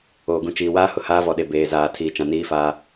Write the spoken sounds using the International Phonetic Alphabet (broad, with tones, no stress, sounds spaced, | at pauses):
oː˨ ɡ ũ˨ t͡ʃ iː˨ w aː˦ h ʊ˨ h aː˦ v ɔ˨ ɗ e˨ b eː˨ z aː˨ tʰ iː˨ t͡ʃ ã˨ n iː˦ f aː˦